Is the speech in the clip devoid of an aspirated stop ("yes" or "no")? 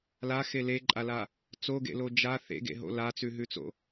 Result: yes